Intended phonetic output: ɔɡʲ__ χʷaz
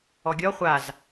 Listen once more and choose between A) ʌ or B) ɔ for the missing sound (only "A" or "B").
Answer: B